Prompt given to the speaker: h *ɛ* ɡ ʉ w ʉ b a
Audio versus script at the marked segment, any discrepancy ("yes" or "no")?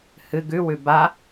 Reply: yes